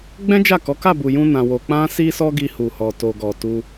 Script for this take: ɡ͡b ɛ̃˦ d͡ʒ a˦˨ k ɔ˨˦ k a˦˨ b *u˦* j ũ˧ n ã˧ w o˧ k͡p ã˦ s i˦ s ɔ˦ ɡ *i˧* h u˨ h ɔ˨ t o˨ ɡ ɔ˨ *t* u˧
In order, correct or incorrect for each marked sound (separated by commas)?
incorrect, correct, correct